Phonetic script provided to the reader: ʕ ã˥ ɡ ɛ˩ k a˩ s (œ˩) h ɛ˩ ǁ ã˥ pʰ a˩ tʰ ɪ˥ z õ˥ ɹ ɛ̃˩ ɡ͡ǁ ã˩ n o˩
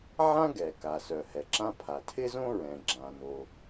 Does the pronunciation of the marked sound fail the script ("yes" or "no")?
no